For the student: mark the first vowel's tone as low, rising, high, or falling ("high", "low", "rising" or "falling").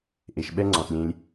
low